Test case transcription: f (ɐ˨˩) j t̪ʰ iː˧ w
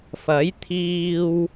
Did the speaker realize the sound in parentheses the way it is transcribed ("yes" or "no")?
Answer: no